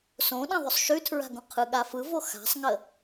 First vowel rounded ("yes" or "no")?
yes